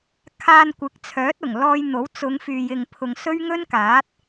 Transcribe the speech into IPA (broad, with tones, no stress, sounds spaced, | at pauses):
kʰ aː˧ n kʷ ɪ˨˥ k̚ t͡sʰ œː˨˥ t̚ ʊ˨˩ ŋ l ɔː˧ j n̪ o˨˥ w t͡s ʊ˨˧ ŋ f yː˨ j ɪ˨ ŋ pʰ ʊ˧ ŋ s ɵ˥ ɥ ŋ ɵ˥ n k aː˨˥ t̚